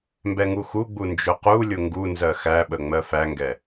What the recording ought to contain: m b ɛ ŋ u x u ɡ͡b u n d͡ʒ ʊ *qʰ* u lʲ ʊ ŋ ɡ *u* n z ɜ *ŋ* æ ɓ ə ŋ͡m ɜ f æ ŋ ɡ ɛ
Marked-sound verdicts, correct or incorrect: incorrect: q, correct, incorrect: x

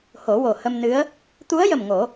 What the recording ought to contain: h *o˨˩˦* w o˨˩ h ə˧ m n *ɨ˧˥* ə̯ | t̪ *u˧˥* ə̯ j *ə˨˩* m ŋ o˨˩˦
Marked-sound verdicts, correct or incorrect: correct, correct, correct, correct

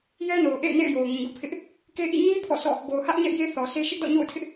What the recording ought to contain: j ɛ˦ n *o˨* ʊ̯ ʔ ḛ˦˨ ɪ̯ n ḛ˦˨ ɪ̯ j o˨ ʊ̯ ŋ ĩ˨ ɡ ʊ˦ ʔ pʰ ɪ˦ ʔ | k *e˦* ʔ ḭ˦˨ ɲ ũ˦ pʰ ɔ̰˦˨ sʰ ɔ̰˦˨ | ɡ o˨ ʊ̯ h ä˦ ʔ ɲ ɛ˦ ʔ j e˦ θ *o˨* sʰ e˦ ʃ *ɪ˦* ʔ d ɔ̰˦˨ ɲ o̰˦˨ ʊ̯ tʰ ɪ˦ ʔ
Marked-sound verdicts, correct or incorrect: correct, correct, incorrect: ɔ˨, correct

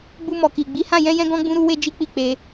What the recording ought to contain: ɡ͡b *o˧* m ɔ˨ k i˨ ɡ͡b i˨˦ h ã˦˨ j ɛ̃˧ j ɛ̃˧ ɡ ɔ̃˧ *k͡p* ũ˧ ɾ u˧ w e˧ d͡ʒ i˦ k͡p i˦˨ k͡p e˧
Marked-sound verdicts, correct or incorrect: incorrect: u˧, incorrect: ɡ͡b

